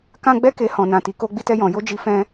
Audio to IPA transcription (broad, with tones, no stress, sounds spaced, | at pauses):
k ã˦ ɡ͡b ɛ˦ k e˧ h ɔ̃˨ n ã˨ t i˨ k o˧ ɡ͡b i˧ t ɛ˧ j ɔ̃˨ j o˧ d͡ʒ i˧ f ɛ̃˧